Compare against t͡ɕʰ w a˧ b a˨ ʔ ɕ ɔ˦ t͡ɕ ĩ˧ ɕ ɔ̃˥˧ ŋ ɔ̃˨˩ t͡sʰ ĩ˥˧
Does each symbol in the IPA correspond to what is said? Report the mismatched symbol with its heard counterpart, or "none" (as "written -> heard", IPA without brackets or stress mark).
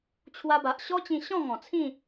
none